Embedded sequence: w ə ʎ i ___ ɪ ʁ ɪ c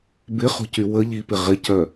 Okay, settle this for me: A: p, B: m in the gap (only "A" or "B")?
A